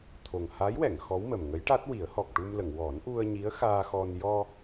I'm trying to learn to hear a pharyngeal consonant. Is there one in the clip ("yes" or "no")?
no